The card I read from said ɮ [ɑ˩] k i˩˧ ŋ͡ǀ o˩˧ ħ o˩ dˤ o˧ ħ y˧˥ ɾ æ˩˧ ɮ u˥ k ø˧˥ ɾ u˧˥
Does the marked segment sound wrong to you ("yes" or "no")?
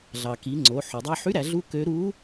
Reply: no